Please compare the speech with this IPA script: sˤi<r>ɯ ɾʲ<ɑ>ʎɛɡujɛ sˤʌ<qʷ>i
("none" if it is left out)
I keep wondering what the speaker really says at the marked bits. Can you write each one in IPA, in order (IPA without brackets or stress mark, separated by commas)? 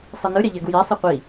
n, a, qʷ